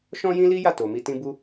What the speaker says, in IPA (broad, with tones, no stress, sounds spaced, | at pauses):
ʃ ɔ̃˦ j ĩ˦ l i˦ j a˦˨ t o˨ m i˧ t ĩ˦ b u˦